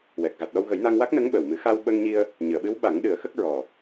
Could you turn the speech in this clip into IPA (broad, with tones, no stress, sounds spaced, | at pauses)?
w ɛ˨˩ k̚ ɣ a˨˩ t̚ ɗ ɔ˧ w ɣ ə˨˩˦ j n a˧ ŋ w a˦˥ k̚ n ə˧˥ ŋ ɓ ə˨˩ w m ɨ˨˩˦ x a˧ w ɓ ə˧ ŋ ɲ i˧ ə̯ | ɲ ɨ˨˩˨ ə̯ ɓ ɨ˧˥ w ɓ a˨˩˦ ŋ ɗ ɨ˨˩˦ ə̯ x ə˦˥ k̚ ɹ ɔ˨˩